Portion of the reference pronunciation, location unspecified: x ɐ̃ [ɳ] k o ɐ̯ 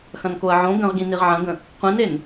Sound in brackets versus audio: incorrect: n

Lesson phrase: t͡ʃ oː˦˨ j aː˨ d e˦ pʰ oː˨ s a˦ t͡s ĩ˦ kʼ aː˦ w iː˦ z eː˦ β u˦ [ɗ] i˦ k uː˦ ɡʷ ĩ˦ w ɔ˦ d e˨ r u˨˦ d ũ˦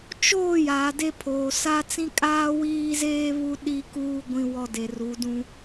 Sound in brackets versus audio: correct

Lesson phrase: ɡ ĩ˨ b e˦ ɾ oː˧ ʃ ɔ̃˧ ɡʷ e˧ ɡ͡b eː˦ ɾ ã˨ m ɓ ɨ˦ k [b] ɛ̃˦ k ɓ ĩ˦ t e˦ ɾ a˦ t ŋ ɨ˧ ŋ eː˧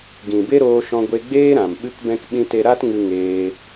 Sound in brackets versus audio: correct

